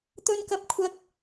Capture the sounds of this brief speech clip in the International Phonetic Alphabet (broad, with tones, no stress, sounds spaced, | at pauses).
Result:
t̪ ɵ˥ n k ɐ˥ p̚ kʷʰ ɐ˥ k̚